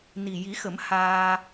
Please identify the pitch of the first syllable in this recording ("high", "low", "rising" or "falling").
low